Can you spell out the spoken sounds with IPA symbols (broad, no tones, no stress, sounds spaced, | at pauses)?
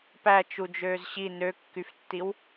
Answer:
p æ t͡ʃ u d͡ʒ øː z ɕ i n ø kː y f tː i w